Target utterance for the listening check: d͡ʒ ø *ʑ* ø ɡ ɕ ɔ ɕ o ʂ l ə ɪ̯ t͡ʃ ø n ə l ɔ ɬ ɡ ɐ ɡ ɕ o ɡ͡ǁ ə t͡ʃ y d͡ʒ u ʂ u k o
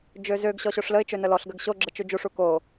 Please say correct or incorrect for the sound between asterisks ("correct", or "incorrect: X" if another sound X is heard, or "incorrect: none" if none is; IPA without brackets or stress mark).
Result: incorrect: z